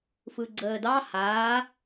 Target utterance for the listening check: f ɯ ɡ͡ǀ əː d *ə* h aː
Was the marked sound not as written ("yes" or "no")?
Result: yes